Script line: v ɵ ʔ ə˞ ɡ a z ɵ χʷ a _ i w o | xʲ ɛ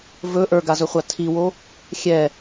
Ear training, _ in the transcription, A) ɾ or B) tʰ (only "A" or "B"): B